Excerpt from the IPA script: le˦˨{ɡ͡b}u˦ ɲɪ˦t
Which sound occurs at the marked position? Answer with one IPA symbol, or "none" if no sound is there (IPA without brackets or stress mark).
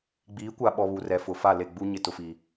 ɡ͡b